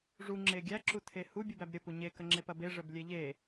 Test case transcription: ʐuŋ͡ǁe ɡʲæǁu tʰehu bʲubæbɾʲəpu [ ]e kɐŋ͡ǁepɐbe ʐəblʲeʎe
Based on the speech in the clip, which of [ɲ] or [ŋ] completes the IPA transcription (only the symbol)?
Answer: ɲ